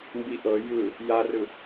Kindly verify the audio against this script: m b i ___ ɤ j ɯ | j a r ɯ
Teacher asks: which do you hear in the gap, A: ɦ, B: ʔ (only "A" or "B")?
B